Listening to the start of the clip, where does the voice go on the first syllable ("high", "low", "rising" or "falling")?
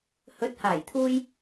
rising